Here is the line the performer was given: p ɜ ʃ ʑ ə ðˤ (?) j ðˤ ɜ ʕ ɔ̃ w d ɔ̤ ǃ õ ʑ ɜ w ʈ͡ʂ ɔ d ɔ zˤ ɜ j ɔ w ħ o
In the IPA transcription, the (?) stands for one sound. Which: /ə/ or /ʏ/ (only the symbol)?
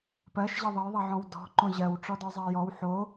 ə